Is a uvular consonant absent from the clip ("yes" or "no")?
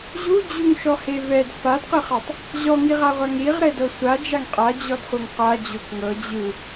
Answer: no